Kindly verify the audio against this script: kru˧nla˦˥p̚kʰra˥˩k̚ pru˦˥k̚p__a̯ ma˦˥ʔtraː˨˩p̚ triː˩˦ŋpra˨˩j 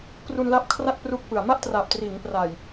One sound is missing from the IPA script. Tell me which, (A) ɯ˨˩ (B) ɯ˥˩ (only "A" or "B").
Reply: A